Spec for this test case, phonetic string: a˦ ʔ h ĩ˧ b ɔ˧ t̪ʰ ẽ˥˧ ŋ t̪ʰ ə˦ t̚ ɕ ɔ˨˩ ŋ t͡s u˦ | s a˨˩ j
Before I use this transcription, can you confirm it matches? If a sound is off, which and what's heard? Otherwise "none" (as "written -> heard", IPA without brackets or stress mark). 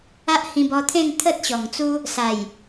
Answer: none